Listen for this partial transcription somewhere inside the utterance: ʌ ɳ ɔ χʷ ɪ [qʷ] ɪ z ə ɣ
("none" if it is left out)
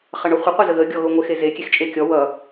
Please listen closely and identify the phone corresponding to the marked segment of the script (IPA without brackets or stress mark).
qʷ